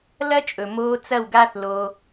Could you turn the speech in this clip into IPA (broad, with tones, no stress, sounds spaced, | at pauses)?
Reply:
l ɐ˦ t͡ʃʼ ɵ˨ m oː˧ t͡s ɐ˦˨ w ɡ a˦ θ l oː˧